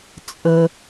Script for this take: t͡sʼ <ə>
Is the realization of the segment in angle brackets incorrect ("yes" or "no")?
no